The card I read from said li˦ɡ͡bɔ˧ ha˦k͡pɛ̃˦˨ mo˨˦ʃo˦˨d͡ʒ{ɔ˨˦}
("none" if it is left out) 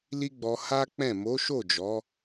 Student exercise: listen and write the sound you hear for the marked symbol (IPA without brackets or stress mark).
ɔ˨˦